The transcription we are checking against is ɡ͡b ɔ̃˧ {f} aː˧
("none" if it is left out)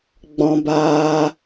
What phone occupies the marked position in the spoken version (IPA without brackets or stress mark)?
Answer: b